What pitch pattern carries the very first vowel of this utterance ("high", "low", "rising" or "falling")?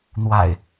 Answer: low